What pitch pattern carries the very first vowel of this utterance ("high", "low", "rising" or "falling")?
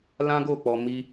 high